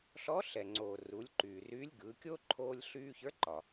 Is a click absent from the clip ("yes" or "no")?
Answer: no